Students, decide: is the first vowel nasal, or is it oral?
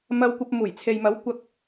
oral